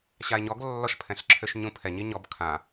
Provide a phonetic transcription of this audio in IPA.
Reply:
ɕ a e̯ ɲ ɔ ɡ lː ɔ ʃ pʰ ɛ̃ ɬ ǁʰ ø ʃ ɲ ũ pʰ ɛ ɲ i ɲ ɔ b kʰ ã

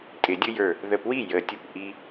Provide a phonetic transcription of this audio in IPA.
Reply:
tʼ ɪ˨˩˦ dʲ ʊ˦ j ə˞˧˩ | ð ə˧˩ p w i˥˩ j ə˨˩˦ tʲ ʊ˧˩ p ʔ i˦

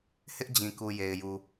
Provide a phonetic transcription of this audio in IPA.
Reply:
h ɪ˦ ʔ d͡ʑ ĩ˨ k u˨ j e˨ ɪ̯ j u˨

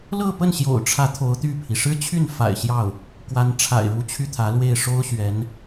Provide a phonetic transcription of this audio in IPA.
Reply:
l ɤ˥˧ p ə˥˩ n ɕ j o̰˨˩ ʊ̯ ʈ͡ʂʰ ä˧˥ t̪ʰ o˧˥ ʊ̯ t̪ y˥˩ pʰ i˩ ʂ ɻ̩˥ t͡ɕʰ y˥˩ n f a̰˨˩ ɪ̯ ɕ j ɑ˥˩ ʊ̯ | k w a˧˥ n ʈ͡ʂʰ a̰˨˩ ɪ̯ ɻ u˧˥ t͡ɕʰ y˥˩ t̪ʰ ä˧˥ l w e˥˩ ɪ̯ ʂ o˥ ʊ̯ ɕ ɥ ɛ˧˥ n

